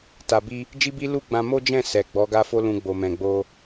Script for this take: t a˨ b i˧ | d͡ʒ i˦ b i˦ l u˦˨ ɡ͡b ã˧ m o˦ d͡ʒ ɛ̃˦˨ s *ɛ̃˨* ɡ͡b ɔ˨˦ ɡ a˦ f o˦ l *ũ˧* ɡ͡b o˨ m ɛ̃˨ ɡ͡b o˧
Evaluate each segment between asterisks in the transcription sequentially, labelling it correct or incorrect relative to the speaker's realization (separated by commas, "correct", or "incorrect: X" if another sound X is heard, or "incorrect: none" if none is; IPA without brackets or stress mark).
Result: incorrect: ɛ˨, correct